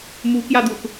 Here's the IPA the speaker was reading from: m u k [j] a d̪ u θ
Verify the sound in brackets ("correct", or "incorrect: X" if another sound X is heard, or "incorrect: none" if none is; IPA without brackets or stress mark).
correct